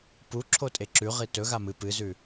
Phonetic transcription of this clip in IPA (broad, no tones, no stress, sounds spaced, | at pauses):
p u ǁʰ o tʼ e ǁ ʉ ʁ i t ɵ ɣ a m ɨ p ɨ z ʉ